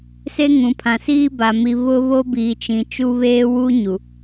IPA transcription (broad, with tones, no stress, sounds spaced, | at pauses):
s e˦ ŋ ũ˨ pʰ ã˨ s iː˦ b a˨ m i˨ β ʊ˦ β o˦ b iː˨ t͡ʃ ĩ˨ t͡ʃ u˦ β eː˦ w uː˦ ɲ u˨